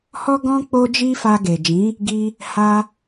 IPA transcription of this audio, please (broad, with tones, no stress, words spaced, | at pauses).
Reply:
hɔ˦ɡɔ̃˦ k͡po˦d͡ʒi˦fa˧ ɡe˨d͡ʒĩ˨˦ | ɡi˧ | ha˧